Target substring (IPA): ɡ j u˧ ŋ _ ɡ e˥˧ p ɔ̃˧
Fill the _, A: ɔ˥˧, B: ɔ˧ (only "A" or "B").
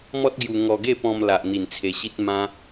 B